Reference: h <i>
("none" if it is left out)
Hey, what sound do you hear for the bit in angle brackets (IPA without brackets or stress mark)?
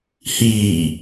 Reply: iː